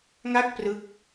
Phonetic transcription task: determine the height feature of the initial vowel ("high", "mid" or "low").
low